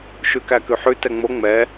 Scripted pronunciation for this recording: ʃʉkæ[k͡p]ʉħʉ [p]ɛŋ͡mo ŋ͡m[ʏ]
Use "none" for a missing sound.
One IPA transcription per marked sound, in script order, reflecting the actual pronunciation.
k, t, ɛ

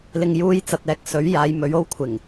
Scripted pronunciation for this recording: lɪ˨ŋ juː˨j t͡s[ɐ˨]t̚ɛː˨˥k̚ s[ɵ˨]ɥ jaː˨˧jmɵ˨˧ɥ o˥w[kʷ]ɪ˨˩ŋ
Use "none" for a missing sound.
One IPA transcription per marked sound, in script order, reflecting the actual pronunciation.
ɐ˨, ɵ˨˥, kʷʰ

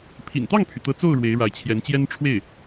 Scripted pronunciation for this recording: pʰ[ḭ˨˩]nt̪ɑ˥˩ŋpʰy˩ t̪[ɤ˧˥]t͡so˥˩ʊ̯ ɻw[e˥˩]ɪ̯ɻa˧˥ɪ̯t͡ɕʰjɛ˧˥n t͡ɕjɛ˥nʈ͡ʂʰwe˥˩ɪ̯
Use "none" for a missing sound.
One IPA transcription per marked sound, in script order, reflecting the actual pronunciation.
ḭ˨˩, ɤ˧˥, e˧˥

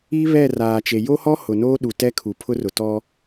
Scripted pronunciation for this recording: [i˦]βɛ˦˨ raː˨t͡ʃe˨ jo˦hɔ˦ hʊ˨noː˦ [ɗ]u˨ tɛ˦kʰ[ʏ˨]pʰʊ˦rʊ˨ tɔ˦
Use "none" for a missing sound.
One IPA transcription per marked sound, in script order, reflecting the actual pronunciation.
i˦, ɗ, u˨

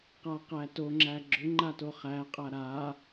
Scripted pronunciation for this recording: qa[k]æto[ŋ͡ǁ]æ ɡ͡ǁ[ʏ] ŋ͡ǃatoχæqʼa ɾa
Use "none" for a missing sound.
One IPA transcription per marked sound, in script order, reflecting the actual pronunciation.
q, ŋ͡ǁ, ʏ

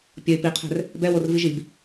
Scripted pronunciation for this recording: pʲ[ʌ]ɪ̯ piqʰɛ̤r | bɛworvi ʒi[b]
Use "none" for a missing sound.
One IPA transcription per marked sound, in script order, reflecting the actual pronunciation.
ʌ, b

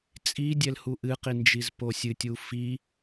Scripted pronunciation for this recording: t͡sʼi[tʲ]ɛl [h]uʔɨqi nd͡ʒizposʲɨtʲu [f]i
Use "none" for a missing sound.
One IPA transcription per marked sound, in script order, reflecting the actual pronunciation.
dʲ, h, f

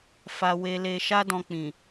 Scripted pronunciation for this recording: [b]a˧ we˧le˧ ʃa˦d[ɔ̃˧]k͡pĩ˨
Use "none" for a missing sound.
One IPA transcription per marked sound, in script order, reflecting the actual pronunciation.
f, ɔ̃˧

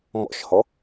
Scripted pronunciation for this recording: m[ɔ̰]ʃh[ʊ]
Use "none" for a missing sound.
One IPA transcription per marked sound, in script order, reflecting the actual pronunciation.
ɔ̰, ɔ

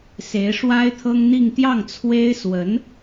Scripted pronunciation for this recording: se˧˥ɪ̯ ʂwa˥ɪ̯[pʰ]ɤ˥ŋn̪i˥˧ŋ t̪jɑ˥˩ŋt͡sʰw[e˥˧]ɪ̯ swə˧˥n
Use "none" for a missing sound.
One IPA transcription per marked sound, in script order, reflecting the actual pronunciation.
t̪ʰ, e˥

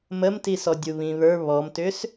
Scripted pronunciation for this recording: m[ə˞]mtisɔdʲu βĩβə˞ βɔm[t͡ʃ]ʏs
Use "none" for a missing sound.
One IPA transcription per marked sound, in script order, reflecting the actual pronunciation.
ə, t

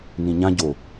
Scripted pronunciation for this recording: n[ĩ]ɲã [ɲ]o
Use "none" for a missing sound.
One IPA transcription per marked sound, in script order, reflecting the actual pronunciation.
ĩ, ɟ

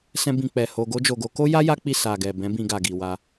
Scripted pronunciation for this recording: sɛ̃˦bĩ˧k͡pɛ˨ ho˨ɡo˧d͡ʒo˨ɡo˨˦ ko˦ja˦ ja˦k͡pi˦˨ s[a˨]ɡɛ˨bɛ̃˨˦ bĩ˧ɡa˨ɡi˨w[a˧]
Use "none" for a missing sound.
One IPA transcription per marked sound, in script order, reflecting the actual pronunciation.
a˨, a˧

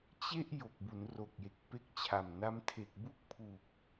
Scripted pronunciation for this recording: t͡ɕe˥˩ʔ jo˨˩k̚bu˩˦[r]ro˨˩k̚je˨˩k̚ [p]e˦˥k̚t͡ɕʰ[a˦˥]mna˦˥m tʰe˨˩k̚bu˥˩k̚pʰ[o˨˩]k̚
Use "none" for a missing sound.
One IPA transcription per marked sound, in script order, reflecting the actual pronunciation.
n, p, a˨˩, u˨˩

